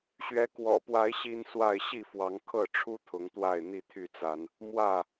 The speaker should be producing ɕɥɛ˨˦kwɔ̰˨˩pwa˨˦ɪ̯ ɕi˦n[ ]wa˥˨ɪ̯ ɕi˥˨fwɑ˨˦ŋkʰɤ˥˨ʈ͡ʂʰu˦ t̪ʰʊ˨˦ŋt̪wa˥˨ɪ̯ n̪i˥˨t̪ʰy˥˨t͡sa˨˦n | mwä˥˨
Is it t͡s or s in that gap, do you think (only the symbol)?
s